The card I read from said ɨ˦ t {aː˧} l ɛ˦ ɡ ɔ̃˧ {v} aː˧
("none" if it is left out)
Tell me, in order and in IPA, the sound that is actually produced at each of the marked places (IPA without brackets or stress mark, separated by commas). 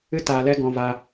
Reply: aː˧, v